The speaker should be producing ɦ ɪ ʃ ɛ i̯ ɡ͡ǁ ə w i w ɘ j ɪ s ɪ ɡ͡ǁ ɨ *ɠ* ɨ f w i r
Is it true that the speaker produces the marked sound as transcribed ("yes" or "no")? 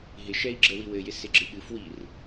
yes